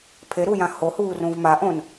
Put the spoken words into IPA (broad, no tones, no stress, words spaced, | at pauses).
pʰeɾu jãhohuː rũvmaʔõn